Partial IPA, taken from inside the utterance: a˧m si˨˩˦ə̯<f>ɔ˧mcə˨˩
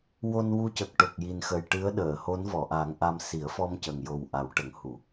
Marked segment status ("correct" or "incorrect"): correct